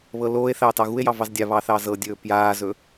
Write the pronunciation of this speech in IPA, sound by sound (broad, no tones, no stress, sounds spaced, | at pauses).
β ɤ l oː e̯ θ ɑː t ɑ ɣ u e̯ j ɑ v ɑ z dʲ a β ɑ θ ɑ z ɤ dʲ ɵː p j aː z ɵ